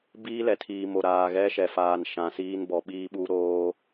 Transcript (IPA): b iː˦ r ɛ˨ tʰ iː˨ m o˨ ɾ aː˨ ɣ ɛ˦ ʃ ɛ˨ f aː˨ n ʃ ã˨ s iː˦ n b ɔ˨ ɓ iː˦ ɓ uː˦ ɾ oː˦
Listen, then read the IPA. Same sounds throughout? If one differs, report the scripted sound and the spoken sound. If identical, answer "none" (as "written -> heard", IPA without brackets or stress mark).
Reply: r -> l